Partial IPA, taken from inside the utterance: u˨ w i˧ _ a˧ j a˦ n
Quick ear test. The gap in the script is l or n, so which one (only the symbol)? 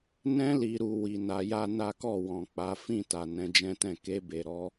n